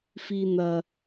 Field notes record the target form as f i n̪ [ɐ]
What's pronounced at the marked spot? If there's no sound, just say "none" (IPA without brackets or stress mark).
ɐ